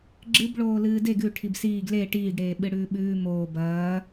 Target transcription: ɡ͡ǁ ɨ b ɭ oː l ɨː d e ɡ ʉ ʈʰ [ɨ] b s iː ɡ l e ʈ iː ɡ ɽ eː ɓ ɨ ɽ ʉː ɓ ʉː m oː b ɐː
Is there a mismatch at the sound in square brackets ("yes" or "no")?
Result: yes